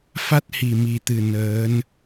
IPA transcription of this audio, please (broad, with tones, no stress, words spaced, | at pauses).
fa˦˥t̚hi˨˩mi˨˩t̪ɨ˨˩ nəː˨˦n